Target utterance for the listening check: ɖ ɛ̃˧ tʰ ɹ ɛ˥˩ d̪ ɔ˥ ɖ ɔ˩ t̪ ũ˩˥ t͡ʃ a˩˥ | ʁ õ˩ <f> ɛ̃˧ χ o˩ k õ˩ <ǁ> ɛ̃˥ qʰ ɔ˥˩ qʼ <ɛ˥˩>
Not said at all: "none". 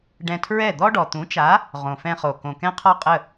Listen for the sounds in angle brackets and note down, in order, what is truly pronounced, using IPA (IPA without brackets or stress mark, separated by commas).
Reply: f, k, ə˥˩